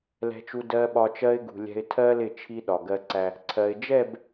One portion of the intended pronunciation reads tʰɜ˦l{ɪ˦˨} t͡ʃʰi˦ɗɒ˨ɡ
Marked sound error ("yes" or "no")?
no